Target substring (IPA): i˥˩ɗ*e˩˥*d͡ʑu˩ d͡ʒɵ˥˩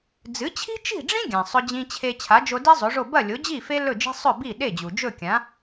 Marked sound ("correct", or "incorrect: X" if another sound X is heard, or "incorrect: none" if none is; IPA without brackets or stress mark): incorrect: e˥˩